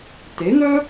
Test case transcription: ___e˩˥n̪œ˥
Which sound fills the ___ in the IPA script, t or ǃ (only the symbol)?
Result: t